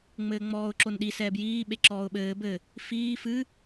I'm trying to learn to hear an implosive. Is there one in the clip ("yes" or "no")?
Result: yes